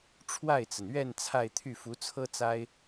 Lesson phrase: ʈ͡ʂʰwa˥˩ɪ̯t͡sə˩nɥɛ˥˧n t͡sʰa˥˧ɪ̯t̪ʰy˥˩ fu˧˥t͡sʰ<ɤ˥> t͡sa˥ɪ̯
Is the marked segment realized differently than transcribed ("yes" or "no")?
no